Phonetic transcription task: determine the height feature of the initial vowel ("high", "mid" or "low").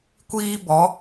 high